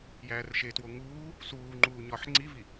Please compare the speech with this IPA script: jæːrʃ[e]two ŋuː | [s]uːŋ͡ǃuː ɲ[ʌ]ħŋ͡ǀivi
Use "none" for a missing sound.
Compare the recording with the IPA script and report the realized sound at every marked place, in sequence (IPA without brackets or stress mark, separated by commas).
e, s, ɒ